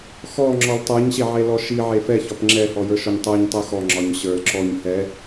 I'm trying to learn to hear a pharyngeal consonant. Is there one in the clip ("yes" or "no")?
yes